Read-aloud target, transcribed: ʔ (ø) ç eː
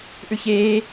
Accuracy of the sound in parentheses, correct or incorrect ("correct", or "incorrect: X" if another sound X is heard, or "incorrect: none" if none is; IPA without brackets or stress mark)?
incorrect: ʉ